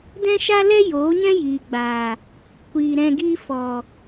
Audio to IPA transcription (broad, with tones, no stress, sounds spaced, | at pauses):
d ɛ̃˦ ʃ a˦ l ɛ˦ j oː˨˦ ɲ ɛ̃˦ j iː˨ ɡ͡b aː˨ | kʷ iː˨ ɾ ɛ̃˧ ɡ iː˧ f ɔ˨